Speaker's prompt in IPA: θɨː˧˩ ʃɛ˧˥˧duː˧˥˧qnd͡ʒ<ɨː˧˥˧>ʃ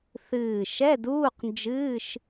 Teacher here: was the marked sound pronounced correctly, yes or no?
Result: yes